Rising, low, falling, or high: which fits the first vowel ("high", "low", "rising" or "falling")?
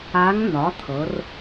rising